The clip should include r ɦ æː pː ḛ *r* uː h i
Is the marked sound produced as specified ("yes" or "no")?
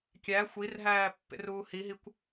yes